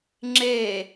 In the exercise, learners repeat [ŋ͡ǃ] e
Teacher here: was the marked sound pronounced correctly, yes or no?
no